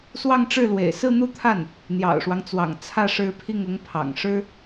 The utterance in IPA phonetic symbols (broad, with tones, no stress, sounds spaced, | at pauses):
s w ɑ˥˧ ŋ ʈ͡ʂ ɻ̩˥˩ l w ḛ˨˩ ɪ̯ s ɹ̩˥˧ n̪ u˥˧ t̪ʰ a˥˩ n | n̪ j ɑ̰˨˩ ʊ̯ ʂ w ɑ˦ ŋ t͡s w ɑ̰˨˩ ŋ t͡sʰ ä˥˩ ʂ ɻ̩˧˥ pʰ i˥˩ ŋ ʊ˧˥ ŋ pʰ ɑ̰˨˩ ŋ ʂ ɻ̩˥